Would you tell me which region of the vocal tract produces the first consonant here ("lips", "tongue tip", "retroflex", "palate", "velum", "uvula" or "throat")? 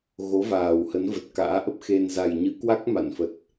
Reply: velum